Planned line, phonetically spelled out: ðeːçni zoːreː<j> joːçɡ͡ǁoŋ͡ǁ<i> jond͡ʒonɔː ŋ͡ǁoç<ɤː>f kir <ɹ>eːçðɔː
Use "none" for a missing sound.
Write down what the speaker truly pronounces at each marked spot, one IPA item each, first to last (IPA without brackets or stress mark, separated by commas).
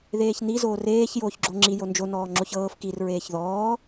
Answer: ç, i, ɤː, ɹ